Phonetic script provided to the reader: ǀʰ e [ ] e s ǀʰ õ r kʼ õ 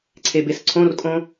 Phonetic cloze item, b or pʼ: b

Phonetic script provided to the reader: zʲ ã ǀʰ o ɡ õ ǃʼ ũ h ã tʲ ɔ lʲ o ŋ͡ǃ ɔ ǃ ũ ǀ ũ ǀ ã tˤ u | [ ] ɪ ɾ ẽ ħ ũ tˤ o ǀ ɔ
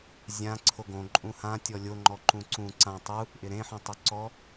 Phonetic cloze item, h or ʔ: ʔ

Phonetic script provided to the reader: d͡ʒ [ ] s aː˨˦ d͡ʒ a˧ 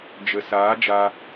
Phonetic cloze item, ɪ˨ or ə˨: ə˨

